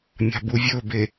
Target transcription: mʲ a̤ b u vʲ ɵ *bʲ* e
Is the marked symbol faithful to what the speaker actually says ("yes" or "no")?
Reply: no